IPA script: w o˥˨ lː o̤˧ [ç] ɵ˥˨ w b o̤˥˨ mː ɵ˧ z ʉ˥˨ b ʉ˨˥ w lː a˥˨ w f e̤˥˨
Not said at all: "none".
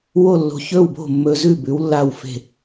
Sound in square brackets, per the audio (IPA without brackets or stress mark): ç